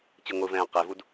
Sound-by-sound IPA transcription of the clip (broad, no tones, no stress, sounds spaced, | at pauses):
t͡ɕ ɯ ŋʷ ɯ v ɛ̃ː q e v u d